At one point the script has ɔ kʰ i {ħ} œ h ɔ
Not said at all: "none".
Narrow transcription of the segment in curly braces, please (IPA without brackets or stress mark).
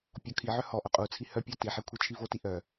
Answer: ʕ